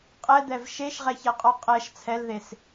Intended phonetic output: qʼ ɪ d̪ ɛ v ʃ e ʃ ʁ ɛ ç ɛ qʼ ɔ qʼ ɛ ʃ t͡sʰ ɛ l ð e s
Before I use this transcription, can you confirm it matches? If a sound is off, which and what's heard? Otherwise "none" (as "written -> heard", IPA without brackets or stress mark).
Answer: ɪ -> ɛ